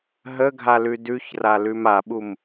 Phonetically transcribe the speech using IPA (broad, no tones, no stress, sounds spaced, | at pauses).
ɦ ə ɡʱ a l ʉ d ʉ ç r a l ʉ m a ɓ u m